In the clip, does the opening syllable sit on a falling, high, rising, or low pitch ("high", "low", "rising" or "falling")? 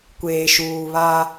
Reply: low